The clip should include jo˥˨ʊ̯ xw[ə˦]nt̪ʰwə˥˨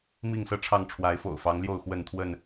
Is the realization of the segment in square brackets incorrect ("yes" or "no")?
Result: yes